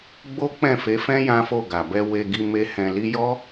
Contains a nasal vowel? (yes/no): yes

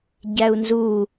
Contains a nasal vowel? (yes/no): no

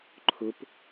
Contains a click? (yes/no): yes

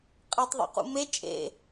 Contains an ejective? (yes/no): yes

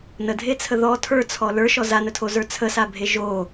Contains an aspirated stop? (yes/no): yes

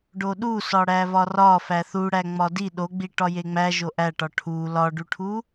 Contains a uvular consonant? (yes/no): no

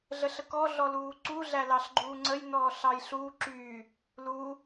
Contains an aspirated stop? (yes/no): no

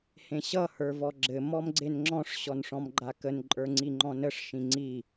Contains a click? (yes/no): yes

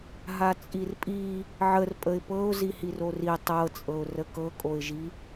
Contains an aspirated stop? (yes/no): no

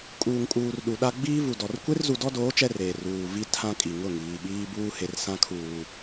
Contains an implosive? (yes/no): yes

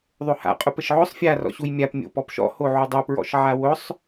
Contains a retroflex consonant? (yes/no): no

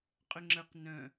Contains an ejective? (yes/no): yes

